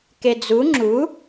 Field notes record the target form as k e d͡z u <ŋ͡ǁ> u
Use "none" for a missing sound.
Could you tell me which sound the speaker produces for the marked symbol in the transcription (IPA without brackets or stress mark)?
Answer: ŋ͡ǁ